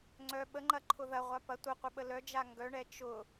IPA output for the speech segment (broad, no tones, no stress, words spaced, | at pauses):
ŋ͡ǀœ ɓəŋ͡ǃɐǃʰʊ ðɐʁʷa pɐ tʷəqʷəɓə lœd͡ʒa ŋɡœɳɛ t͡ʃʊ